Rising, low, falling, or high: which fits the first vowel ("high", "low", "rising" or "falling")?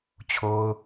high